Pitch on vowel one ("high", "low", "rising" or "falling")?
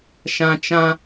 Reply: high